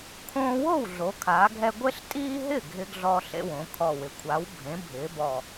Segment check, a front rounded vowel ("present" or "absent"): absent